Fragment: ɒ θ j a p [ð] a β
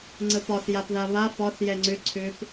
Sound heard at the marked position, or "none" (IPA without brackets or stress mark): ð